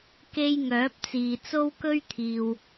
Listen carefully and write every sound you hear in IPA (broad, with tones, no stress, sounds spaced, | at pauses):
k e˧ j ŋ œː˨˥ p̚ t͡s iː˨ t͡s o˥ w k ɵ˥ ɥ t̪ʰ iː˨ w